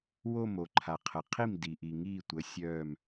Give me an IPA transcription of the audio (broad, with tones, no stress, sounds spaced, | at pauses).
w o˥˩ m o˩ ǃʰ a˩ qʰ ə˩ qʰ i˥˩ m d i˩ ʔ i˩ ŋ iː˥˩ tʷ ə˩˥ sʲ œː˧˩ m